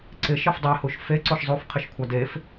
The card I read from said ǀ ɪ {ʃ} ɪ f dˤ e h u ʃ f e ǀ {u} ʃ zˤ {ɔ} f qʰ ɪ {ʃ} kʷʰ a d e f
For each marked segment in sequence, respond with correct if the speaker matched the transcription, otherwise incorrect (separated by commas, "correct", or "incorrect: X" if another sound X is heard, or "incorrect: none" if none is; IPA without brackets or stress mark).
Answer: correct, incorrect: o, incorrect: o, correct